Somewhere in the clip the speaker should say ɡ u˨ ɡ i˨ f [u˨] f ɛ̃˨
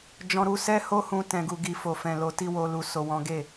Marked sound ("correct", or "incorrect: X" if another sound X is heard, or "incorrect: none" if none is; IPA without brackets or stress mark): incorrect: o˨